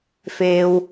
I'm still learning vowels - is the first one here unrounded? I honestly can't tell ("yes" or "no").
yes